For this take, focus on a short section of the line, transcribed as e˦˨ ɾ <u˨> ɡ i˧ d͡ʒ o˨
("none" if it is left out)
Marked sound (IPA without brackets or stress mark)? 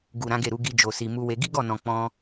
u˨˦